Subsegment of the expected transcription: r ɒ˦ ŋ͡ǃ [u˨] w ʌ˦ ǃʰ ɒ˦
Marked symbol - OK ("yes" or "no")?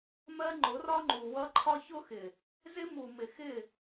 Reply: yes